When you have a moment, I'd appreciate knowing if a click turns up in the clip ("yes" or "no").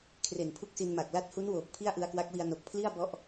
no